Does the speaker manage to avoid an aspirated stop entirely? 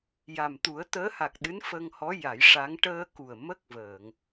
yes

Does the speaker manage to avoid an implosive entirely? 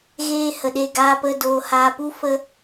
no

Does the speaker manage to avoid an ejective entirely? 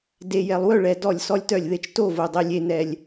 yes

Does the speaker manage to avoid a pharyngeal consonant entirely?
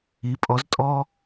yes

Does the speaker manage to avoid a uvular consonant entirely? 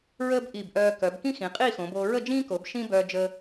no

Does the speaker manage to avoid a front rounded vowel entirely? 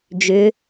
no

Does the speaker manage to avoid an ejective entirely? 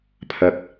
yes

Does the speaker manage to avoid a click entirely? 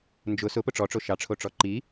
no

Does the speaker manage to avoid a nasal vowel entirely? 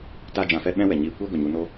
no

